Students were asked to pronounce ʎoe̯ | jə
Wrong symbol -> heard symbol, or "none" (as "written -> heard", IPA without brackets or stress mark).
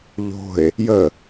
o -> o̤